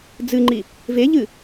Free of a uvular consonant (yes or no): yes